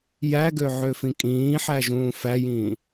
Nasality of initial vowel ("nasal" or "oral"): oral